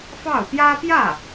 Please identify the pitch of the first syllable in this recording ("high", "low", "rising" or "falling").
falling